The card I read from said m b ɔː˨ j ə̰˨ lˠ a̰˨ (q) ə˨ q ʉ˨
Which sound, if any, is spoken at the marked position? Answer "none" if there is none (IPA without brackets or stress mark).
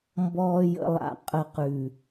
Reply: qʼ